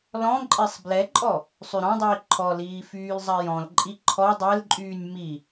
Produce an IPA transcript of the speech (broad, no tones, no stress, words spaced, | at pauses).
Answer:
lɔ̃ǃʼesˤ blɛǃʼɔ | sˤyɾɔ̃dˤiː ǃʰɔliː fyːlzˤajɔ̃lǃʼi ǃʰɔ dˤɛlǃʼyːnʲ mi